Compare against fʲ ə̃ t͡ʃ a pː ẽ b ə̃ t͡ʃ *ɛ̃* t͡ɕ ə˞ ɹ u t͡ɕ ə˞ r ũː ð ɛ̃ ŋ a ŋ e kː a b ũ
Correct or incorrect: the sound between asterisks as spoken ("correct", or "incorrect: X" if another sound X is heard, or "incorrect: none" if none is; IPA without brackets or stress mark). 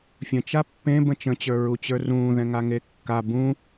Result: incorrect: ə̃